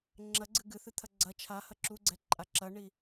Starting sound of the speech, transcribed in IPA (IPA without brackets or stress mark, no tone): ŋ͡ǁ